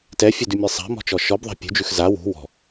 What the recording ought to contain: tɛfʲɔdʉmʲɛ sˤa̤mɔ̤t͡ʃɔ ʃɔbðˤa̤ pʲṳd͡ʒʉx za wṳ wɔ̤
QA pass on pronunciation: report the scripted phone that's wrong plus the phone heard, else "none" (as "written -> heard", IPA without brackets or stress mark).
none